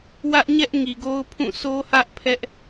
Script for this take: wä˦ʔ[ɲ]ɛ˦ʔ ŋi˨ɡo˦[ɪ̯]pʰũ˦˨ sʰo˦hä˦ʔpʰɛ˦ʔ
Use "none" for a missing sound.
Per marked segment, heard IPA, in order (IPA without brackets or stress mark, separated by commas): ɲ, ʊ̯